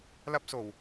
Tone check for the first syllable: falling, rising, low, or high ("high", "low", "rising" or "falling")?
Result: high